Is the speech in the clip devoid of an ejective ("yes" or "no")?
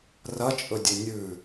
no